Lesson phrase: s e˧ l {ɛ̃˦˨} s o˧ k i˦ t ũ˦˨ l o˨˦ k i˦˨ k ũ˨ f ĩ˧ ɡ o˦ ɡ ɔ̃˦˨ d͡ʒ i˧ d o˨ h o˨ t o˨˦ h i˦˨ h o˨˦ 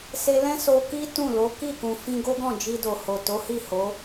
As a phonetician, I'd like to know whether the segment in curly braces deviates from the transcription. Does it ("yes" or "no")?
yes